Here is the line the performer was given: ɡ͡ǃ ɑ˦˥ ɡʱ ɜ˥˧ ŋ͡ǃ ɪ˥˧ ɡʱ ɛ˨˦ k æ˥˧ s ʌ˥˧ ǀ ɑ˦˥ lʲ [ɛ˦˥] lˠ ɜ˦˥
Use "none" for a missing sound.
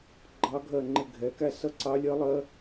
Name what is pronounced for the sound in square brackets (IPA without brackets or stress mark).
ɜ˦˥